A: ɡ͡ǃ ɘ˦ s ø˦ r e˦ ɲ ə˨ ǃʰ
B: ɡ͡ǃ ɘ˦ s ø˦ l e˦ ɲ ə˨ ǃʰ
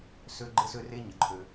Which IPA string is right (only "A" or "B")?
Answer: A